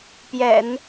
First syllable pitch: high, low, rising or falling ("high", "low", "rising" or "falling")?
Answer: low